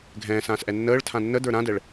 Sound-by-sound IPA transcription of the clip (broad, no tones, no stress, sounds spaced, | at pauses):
ɡʱ ɛ̃ː s ãː s ʔ ɛ nː əː ɭ tʰ ã nː ə d ə˞ ɾ ã d ɛ ɭ